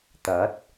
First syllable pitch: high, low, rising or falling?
rising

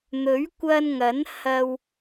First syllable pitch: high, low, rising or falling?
rising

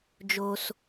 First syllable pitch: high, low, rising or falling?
low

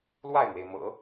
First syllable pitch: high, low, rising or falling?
falling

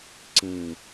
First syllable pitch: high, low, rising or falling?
low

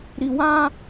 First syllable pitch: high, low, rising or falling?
low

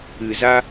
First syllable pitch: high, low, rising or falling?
low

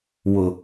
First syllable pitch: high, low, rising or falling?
low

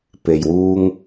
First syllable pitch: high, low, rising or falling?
low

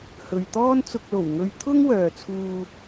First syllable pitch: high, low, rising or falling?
low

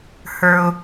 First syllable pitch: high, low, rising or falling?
low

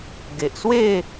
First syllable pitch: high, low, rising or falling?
low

